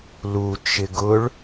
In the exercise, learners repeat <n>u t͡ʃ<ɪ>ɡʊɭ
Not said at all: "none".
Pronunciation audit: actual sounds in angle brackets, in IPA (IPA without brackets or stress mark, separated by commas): l, ɪ